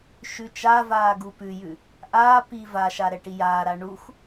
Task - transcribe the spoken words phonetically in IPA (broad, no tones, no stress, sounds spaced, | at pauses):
ʃ ʉ t͡ʃ a v aː ɡ u p ʉ j ʉ | ʔ aː p iː v a ʃ a ɾ ɛ ʈ i j aː ɾ a ɳ u x